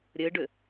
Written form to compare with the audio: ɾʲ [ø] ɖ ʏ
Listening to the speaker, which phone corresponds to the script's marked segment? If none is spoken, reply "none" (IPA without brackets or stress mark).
ɘ